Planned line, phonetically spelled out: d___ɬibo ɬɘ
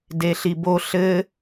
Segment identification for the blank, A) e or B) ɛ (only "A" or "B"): A